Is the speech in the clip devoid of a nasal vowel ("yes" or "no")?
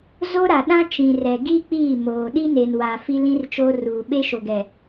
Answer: no